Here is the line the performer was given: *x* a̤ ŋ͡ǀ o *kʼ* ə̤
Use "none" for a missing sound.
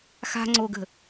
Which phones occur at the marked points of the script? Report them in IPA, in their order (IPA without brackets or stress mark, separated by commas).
x, ɡ